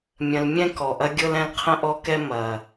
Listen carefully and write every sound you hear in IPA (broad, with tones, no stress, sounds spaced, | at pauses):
mʲ ə̃˨ l mʲ ɛ̃˦ k ɔ˨ ʔ ɐ˦ ɡʲ ɤ˦ l ɛ̃˦ l qʰ ə̃˦ ʔ ɔ˦ k ɛ˦ m ɐ˨